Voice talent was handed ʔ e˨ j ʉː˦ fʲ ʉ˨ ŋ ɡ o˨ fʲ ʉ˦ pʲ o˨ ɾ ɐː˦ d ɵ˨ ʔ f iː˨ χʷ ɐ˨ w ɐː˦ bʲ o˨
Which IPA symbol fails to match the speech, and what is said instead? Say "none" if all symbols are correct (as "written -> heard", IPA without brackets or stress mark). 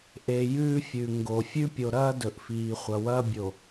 none